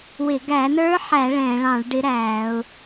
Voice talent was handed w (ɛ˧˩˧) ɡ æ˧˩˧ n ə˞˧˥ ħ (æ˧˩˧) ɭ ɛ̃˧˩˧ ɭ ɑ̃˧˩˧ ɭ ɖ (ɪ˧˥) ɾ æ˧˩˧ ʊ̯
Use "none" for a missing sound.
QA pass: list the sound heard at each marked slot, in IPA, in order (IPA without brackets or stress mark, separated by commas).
ɪ˧˩˧, æ˧˩˧, ɪ˧˥